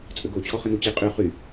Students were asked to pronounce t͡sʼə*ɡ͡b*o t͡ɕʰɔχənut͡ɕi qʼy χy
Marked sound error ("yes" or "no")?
yes